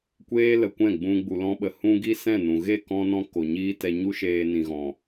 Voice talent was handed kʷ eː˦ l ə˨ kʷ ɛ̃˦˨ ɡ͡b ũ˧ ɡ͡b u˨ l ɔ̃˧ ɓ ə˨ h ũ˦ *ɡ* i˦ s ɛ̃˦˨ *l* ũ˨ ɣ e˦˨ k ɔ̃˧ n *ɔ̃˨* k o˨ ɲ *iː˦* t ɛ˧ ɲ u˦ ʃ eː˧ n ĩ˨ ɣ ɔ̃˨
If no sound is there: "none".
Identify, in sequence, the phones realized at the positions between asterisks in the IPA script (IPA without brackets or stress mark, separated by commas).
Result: ɡ, n, ɔ̃˧, iː˦